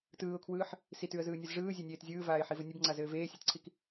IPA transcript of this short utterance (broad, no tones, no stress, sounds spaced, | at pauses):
t ɯː ʊ̯ kʰ w ɯː ħ | s i t ʉ ə̯ z ɯː nʲ ɯ z ʐ ɯː zʲ e nʲ eː t zʲ ɯː v aː ɪ̯ ħ i v ɘ nʲ ɘ b ŋ͡ǀ a z ɘː v eː sʲ e t ǀʰ i k